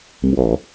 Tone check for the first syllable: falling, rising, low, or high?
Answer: low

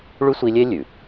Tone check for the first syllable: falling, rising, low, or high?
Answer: high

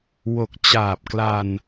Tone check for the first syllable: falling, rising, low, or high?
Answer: low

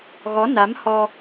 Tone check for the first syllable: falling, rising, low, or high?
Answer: rising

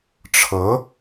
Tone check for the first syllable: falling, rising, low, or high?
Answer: rising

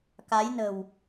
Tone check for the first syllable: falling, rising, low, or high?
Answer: rising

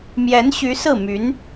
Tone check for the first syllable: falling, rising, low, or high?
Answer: rising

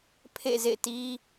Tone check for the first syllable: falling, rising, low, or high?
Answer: falling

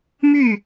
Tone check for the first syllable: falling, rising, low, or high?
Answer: falling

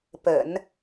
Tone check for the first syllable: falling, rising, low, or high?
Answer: low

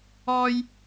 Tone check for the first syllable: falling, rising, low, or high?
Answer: high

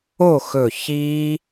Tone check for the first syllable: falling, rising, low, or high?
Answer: falling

